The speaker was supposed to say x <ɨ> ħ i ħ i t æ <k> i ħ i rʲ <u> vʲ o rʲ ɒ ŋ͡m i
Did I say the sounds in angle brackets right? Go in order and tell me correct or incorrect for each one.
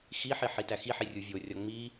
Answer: incorrect: i, incorrect: x, correct

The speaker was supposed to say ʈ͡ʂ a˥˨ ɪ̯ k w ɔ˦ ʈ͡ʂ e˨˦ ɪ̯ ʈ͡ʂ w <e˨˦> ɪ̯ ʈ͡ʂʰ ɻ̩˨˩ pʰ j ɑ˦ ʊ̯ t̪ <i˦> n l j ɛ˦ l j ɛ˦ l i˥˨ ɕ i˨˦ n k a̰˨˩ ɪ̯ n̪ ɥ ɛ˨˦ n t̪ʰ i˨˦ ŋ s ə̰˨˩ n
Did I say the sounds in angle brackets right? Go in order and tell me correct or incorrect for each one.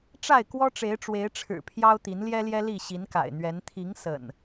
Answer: correct, incorrect: i˨˦

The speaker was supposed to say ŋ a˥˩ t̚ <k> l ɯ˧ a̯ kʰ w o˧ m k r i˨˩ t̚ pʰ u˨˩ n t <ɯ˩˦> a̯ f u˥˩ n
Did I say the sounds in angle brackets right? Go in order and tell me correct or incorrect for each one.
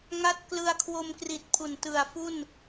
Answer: correct, incorrect: ɯ˨˩

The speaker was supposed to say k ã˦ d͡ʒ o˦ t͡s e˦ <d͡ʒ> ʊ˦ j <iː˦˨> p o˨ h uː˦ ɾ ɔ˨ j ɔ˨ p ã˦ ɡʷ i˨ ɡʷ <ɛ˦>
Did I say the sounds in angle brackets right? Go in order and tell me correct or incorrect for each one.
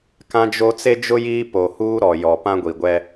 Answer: correct, incorrect: iː˦, correct

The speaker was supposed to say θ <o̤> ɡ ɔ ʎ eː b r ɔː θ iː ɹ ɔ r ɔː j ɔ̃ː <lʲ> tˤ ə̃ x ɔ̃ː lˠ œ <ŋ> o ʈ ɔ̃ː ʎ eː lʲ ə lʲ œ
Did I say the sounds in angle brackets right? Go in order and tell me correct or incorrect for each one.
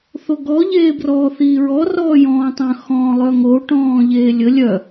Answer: incorrect: o, incorrect: none, correct

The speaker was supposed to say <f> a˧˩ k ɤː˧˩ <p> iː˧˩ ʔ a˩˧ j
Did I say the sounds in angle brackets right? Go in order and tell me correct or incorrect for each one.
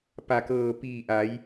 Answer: incorrect: p, correct

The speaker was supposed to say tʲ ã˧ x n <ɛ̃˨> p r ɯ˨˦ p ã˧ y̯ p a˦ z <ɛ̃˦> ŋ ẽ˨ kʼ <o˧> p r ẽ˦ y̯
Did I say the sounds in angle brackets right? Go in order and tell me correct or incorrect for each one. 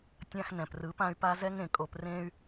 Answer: correct, incorrect: ɛ˦, correct

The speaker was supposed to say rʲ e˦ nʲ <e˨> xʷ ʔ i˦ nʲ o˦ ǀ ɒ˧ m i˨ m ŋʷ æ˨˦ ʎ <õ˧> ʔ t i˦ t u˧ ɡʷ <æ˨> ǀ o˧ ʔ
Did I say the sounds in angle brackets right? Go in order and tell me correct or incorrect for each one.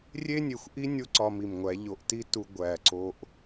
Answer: correct, incorrect: o˧, correct

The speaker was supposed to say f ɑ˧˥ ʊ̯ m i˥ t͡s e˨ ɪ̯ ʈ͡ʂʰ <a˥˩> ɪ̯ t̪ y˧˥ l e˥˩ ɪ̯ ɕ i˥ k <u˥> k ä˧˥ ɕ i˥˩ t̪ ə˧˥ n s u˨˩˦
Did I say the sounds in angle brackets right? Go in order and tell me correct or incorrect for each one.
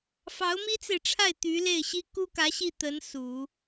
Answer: correct, correct

